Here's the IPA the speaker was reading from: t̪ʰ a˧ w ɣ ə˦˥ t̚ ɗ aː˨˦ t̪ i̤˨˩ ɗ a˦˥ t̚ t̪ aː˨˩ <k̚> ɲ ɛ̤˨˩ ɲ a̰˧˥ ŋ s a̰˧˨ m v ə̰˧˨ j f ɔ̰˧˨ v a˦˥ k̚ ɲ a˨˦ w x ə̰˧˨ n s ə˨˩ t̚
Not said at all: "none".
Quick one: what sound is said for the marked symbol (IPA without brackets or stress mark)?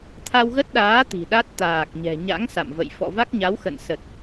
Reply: k̚